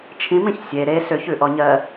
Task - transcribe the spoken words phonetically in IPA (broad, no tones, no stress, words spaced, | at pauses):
t͡ʃʰĩmĩç sʲe ɾe sʏçʉʔɔɲɜ